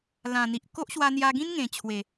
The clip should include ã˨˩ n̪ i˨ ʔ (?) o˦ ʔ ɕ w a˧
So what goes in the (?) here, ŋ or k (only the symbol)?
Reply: k